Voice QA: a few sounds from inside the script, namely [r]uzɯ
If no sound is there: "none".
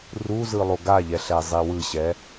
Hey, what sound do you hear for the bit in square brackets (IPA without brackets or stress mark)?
r